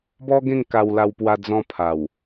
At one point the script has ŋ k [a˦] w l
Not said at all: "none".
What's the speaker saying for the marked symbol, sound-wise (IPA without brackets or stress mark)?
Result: a˧